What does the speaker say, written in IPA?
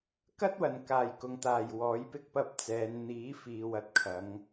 k ɐ˥ t̚ w ɐ˨˩ n k aː˨˩ j k ʊ˨ ŋ t̪ aː˨˩ j w ɔː˨˥ j p ɪ˥ k̚ p ɐ˧ p̚ t͡s ɛː˨˧ n n̪ iː˨˥ f iː˨ w ɐ˨˥ t̚ kʰ ɐ˨˧ ŋ

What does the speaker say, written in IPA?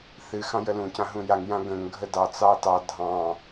θ ɨ x ɑ̃ j ə l ũ c ã ɦ ũ j a ŋ j ã ɡ ə̃ ŋ ɡʱ ə d ɑ t͡s ɑ t ɑ dʱ ɑ̃

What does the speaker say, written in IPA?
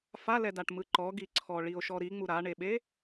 f a l ɛ d a ʈ m ɯ ǃ ɔ ɡ i ǀʰ ɔ ɭ i o̯ ʃ ɔ ɾ i ŋ͡m u ɾ a ɳ e ɓ e

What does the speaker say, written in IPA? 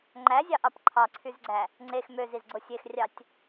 ŋ͡ǃ æ zʲ ɑ ʔ ɑ p ǃʰ ɑ ǀʰ y z ɡ͡ǀ æ | ŋ͡ǀ e x m ø z i z ɡ͡ǀ o sʲ e x rʲ ɑ tʲ

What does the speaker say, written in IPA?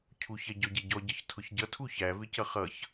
cʰ u ç ɛ ɟ ɔ ɟ ɛ ɟ ɔ ɟ ʌ ç tʰ ʊ ç ɟ ʌ tʰ u ç æ v ɪ c ʌ χ ʌ ç

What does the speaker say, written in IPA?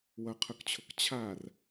w ʌ qʰ ʊ k t͡ɕʰ ʊ k t͡ɕʰ a r

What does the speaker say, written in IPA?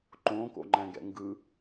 ǃ õ k o̰ ŋ͡ǃ æ̃ ɡ ɛ̰ ŋ ɡ ɯ

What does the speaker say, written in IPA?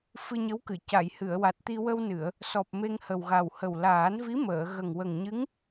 f ɨ˧ ɲ ə˧˥ w k ɨ˨˩˨ c a˨˩˨ j h ɨ˨˩˨ ə̯ w a˨˩ t̚ t̪ i˧ w ə˧ w n ɨ˨˩˨ ə̯ | s ɔ˨˩ p̚ m e˧ ŋ h ə˨˩ w ɣ a˨˩ w h ə˨˩ w l aː˨˩˦ n v i˧˥ m əː˨˩˨ ɣ ə˨˩ ŋ w ə˨˩ ŋ ɲ ɨ˧˥ ŋ

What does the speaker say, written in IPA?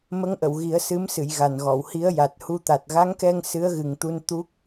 m ə˧˥ ŋ ʔ ə˨˩˨ w ɣ i˨˩˦ ə̯ s ɨ˧˥ m s ɨ˨˩˨ j ɣ a˨˩ n ɣ ɔ˨˩˨ w h i˧˥ ə̯ j a˨˩ t̚ h u˧ t̪ a˨˩ t̚ ɣ a˧˥ ŋ k ɛ˧ ŋ s ɨ˧˥ ə̯ ɣ ɨ˨˩ ŋ t̪ u˧ n t̪ u˦˥ k̚

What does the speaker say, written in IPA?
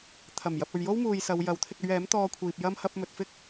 t̪ʰ ɐ˨˩ m j ɐ˨ p̚ ɵ˨ ɥ j o˥ w m uː˨ j s ɐ˨˧ w j ɐ˨˥ w t̪ʰ ɪ˧ k̚ ɵ˧ ɥ ɛː˨˥ m t̪ ɔː˧ kʷʰ iː˨ p̚ j ɐ˥ m h ɐ˧ p̚ m ɵ˨ t̚ f ɪ˥ k̚

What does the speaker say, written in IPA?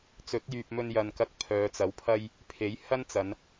t͡s ɵ˨˥ t̚ j yː˨ p̚ m ɵ˧ n j ɐ˨ n k ɐ˧ k̚ pʰ œː˨˧ t͡s ɐ˨˥ w pʰ ɐ˥ j | pʰ e˨˥ j h ɐ˥ n t͡s ɐ˨˧ n

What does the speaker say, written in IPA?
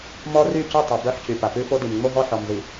m ɔ˦ r y˦˨ c ʉ˦˨ tˤ ʉ˨ b œ˦ ħ c y˨ p a˨ p ʉ˦ f o˦ d i˨ m ŋ͡m o˦ ɦ ɔ˦ ħ ɔ˨ m z i˨

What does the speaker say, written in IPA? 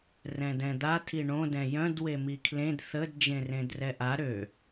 r ɛ̃ d ɛ̃ d̪ a tʰ i ɳ õ d ɛ̃ j œ̃ d w e m i kʰ l ẽ d θ ə d d͡ʒ ẽ r ẽ d r ɛ ʔ a ɾ ø

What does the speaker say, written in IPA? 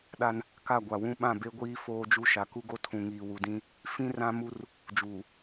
ɗ a˦ n | k a˦˨ ɡʷ a˨ w ũ˦ ɓ ã˦˨ b e˦ ɡʷ iː˦ f oː˦ d͡ʒ u˦ ʃ a˨ k u˦ ɡ o˦ tʰ ũ˨ ŋ iː˨ w u˨ d ĩ˦ | f ĩ˦ r ã˦ m u˦ r | d͡ʒ uː˨

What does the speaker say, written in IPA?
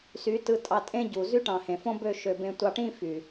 s y˨˦ t ɯ˧ tʼ ɑ˧ tʼ ẽ˦ ɟ u˨ z y˦ ʈ ɑ̃˨ h ẽ˨ f õ˦ b ø˦˨ ʃ ø˨ b ẽ˧ tʷ ɑ˧ ʈ ĩ˦ f y˨

